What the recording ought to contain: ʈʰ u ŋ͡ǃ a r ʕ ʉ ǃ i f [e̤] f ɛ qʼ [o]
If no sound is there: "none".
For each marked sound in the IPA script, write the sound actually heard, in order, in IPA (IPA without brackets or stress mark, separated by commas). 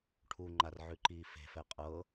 e̤, ɤ